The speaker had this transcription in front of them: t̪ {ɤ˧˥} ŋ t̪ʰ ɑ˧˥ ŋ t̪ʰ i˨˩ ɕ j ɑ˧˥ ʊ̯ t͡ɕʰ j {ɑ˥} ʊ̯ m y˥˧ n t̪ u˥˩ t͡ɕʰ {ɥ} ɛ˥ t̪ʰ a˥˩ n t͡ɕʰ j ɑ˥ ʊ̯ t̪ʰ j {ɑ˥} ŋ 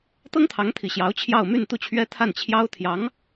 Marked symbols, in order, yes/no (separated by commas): no, no, yes, no